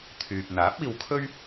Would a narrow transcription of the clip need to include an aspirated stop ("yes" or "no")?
yes